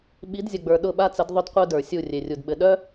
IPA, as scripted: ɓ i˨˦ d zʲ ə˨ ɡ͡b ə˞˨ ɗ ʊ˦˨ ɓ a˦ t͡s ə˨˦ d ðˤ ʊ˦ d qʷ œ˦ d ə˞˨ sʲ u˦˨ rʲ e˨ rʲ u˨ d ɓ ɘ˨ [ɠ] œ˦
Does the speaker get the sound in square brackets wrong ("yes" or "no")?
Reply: yes